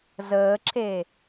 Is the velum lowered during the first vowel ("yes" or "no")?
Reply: no